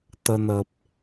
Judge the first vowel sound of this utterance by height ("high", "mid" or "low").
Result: mid